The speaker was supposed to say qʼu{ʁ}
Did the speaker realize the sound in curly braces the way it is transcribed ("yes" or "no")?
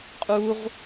yes